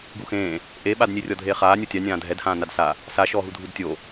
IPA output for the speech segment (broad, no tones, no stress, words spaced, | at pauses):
ɡuxẽː | ʔeɓadnʲe rʲɔdʱeːχaː nʲutʲa nʲãːdʱɛdhãː nadsa | saʃɔːɦu dʱudtʲo